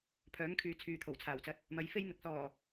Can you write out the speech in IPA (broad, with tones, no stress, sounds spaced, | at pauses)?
pʰ œː˨˥ ŋ kʰ yː˨ t͡sʰ yː˨ t̪ʰ o˨˩ w t͡sʰ aː˨˩ w t͡s ɐ˧ t̚ | m ɐ˨˥ j f e˥ j n̪ ɪ˨˥ k̚ s ɔː˨˩